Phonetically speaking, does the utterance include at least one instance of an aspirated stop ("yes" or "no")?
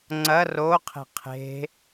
yes